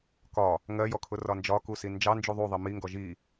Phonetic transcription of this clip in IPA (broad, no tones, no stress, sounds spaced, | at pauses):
k ɒ | ŋ ɜ j ɔ kʰ ʊ r ɒ n d͡ʒ ɒ k u s i n d͡ʒ ɑ n d͡ʒ u ðˤ u ðˤ i m i ŋ ɡ ɔ ʒ i